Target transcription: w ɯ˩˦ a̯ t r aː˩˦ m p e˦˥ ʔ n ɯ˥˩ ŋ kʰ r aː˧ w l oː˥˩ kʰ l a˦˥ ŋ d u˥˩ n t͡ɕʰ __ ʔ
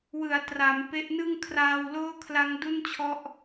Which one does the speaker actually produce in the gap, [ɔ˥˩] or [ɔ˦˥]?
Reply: ɔ˦˥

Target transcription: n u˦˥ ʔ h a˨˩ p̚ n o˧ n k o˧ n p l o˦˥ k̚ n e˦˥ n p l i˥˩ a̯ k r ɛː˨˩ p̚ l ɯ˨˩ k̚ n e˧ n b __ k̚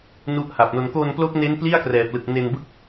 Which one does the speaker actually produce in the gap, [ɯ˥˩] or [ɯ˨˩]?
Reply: ɯ˥˩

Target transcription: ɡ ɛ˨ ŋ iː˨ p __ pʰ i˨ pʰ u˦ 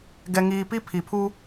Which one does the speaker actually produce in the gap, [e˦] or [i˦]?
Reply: i˦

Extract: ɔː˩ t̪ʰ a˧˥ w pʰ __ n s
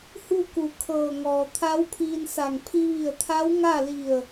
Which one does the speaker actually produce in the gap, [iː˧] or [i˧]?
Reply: iː˧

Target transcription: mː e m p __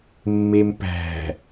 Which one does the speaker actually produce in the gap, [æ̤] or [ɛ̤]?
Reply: æ̤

